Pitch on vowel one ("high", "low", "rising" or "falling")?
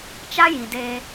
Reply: high